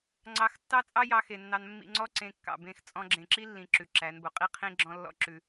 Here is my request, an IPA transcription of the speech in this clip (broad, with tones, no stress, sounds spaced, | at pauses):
ŋ͡ǀ ɑ˧ x tː ɑ˦ t͡sʼ ɑ˦ j ɑ˧ x e˨ nː ɑ˧ n mː ḭ˧ ŋ͡ǀ ɔ˦ ǀ ẽ˧ kː ɑ̰˨ b ẽ˦˨ x t͡sʼ ɔ̃˧ ɡ͡ǁ ẽ˨ ǁ i˦ lː ĩ˨ ǁ ʉ˨ ǁ æ˨˦ n b o˨ qʼ i˦ qʰ ĩ˦ ɡ͡ǁ ɔ̃˦ lː ɔ̰˦ ǁ ʉ˧